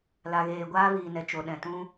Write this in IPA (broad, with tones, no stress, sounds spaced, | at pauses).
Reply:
l a˨ ɣ eː˨ ɡʷ aː˦ v iː˨ n ɛ˨ t͡ʃ o˨ ɗ ɛ̃˨ t ũ˦